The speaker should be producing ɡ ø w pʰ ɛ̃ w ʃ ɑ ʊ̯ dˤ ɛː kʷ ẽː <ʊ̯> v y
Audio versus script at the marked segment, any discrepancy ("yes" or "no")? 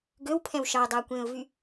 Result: no